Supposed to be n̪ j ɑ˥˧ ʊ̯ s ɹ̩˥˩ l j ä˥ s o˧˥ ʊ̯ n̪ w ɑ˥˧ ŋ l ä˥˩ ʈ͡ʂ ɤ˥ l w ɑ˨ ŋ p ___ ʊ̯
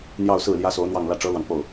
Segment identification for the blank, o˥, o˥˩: o˥˩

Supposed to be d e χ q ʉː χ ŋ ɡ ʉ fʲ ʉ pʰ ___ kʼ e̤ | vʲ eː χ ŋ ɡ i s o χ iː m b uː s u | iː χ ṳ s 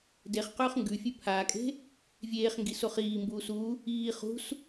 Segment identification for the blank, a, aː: aː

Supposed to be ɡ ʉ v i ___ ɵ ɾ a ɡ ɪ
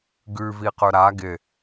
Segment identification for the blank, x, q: q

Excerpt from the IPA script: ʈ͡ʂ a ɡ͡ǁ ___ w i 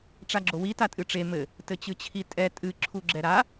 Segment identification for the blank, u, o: o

